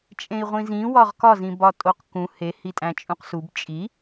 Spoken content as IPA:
t͡ʃʼ ẽ i̯ ʁʷ ĩ z ĩ w ɒ ʁ k ɒ z ĩ b ɒ tʼ o q k ũ h e h i tʼ æ̃ t͡ʃʼ ũ q s u b t͡ʃʼ i

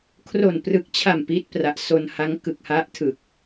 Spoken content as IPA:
kʰ r o˨˩ n p r ɯ˨˩ k̚ t͡ɕʰ a˨˩ m p i˦˥ t̚ p r a˨˩ ʔ s o˧ n h a˦˥ ŋ k ɯ˨˩ k̚ h a˦˥ ʔ tʰ ɯ˨˩ k̚

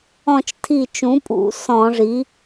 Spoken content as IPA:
ɔ̃˧˩ t͡ʃ tʰ i˧˩ t͡ʃ ũ˩˥ pʼ ṵ˧˩˧ s ɔ̃˧˩˧ ʐ i˩˥

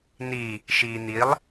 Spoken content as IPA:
n i | ʃ iː n̪ i lˠ

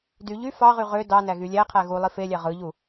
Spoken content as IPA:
d y ʎ y f ɑ ʁ y ʁ ø d ɑ n æ ɣ y lʲ æ qʰ æ ɣ u lˠ i f e lʲ æ ʁ ɯ ʎ u

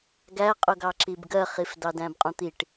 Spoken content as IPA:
ɡ æ qʼ ʊ ɡ ɑ ǁ i b ɡ ɜ χ i f d ɑ d æ̃ b qʼ ũ t̪ i ʈ

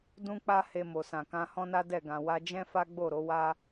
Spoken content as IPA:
d ũ˦ k͡p a˦ h e˧ m o˨ s ã˨ k ã˧ h ɔ̃˦ n a˦ d ɛ˦˨ ɡ ã˨ w a˧ d͡ʒ ɛ̃˦ f a˦ ɡ͡b o˦˨ ɾ o˨˦ w a˦

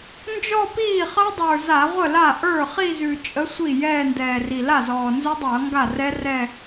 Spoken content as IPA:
n d͡ʒ ɔ˥˧ p iː˥˩ χ ʌ˦˥ dˤ ə˞˨˩ z a˧˩˧ ʁʷ ə˥˩ l a˥˩ ʔ ə˞˥˩ χ i˥˧ z ʉ˨˩ t͡ʃʼ ə˨˥ sʷ i˥˩ j ɛː˥˧ n d ɛː˨˩ r i˨˩ l a˥˩ z ɔː˨˩ n z ʉ˦˥ dˤ ʌː˧˩˧ ŋ ɡ a˥˩ r ɛ˦˥ r ɛ˥˧

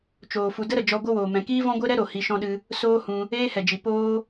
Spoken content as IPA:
t͡ʃ oː˨ f u˨ d ə˦ ɾ ə˨ d͡ʒ ɔ˧ ɡʷ ə˦ w oː˨ m ɛ̃˨ k iː˦ v ɔ̃˦ ɡʷ e˦ ɾ ɛ˦ ɾ o˨ h i˧ ʃ ɔ̃˦ ɗ ɨ˧ | s oː˦ h ũ˧ | eː˦ h ɛ˨ d͡ʒ i˨ p oː˦

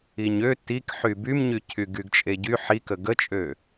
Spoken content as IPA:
i ɲ ø t i k ħ y b y m ɲ y cʰ y ɡ y ɡ t͡ʃʼ e ɟ y ħ i k ə ɡ ə t͡ʃʼ ø

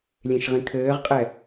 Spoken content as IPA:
lʲ ẽ ʃ ʁ ĩ kʰ ɘː ʁ qʼ ɛ

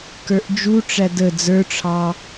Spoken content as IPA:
k ə˞ ʔ d͡ʒ u ʈ͡ʂ æ d ə d͡z ə˞ ʈ͡ʂʰ ɑ

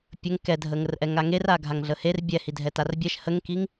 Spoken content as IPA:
pʲ ə ŋ k ɛ dʱ ə ŋ ə r ʔ ɛ ŋ a ŋ e r a ɡʱ a ŋ ɮ ə h e r bʲ ɛ h i dʱ ɛ t a r bʲ ɛ ʃ h ə ŋ k i ŋ

